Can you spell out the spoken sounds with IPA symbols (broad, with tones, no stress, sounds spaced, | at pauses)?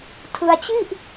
tʰ ɯ˧ a̯ t͡ɕ i˥˩ ʔ